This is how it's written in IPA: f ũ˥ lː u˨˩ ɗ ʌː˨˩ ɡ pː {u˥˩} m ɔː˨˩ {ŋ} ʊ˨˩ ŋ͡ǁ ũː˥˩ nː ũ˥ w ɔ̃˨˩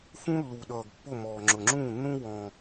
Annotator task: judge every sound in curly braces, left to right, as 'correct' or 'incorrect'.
incorrect, incorrect

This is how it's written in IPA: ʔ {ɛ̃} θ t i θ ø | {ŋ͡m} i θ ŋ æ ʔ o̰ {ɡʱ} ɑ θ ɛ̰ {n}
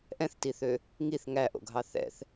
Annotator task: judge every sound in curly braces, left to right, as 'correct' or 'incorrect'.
correct, incorrect, correct, incorrect

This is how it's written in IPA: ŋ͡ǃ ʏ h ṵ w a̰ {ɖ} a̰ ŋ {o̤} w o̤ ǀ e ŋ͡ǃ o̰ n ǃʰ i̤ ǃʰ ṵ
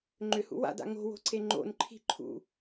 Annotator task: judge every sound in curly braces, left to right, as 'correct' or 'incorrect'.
incorrect, correct

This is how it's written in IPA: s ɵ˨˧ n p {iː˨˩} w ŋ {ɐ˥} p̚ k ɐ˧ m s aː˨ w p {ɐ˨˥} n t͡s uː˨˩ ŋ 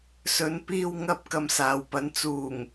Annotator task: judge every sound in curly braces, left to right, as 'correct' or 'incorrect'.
incorrect, correct, incorrect

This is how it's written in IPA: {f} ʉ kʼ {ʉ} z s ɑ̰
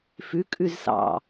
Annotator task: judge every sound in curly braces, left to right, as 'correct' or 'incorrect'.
correct, correct

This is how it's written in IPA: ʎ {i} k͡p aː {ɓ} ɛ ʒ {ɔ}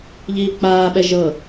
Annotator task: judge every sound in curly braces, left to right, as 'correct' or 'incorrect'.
incorrect, correct, incorrect

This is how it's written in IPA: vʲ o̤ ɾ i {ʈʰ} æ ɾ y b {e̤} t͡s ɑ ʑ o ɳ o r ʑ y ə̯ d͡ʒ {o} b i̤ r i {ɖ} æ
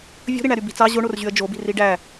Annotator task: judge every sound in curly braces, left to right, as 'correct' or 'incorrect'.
incorrect, incorrect, correct, correct

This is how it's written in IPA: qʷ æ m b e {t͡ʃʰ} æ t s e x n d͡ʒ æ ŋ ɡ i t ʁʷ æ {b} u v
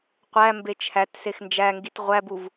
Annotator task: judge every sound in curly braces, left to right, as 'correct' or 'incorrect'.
correct, correct

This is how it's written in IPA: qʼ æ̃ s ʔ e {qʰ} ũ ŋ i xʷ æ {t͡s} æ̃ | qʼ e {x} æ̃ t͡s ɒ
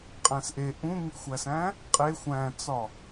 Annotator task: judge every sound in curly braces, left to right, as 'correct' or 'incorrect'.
incorrect, incorrect, incorrect

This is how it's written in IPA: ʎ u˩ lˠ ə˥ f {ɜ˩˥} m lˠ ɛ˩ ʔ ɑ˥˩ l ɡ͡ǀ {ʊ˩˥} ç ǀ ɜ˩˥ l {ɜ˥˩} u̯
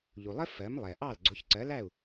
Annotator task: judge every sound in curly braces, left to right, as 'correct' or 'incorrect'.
correct, correct, incorrect

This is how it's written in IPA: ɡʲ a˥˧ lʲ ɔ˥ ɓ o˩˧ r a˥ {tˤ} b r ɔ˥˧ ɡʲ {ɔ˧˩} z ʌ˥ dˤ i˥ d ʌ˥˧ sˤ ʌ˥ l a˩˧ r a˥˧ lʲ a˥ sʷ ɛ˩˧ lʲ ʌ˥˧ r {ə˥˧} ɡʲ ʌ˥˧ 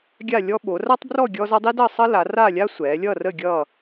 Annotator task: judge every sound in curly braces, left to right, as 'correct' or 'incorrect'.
correct, incorrect, correct

